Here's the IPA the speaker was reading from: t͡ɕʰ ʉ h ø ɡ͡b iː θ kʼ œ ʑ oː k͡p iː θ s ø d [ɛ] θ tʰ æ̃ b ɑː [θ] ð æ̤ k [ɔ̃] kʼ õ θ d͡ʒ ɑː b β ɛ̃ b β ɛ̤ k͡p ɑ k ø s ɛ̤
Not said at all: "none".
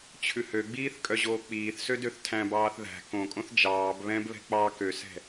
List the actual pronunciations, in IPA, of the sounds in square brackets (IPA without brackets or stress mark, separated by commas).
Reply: ø, θ, õ